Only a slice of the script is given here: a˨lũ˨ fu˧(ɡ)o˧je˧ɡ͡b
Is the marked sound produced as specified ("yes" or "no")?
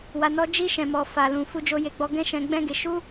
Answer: no